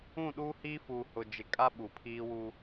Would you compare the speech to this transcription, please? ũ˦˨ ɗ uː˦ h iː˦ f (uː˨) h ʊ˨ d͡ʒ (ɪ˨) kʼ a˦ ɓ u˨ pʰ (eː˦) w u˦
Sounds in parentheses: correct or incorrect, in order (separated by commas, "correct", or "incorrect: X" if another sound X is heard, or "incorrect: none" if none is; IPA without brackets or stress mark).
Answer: correct, correct, incorrect: iː˦